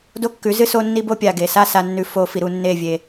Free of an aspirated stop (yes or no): yes